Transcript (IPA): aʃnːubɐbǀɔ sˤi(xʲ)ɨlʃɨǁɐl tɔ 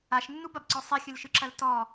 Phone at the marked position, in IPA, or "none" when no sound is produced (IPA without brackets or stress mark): xʲ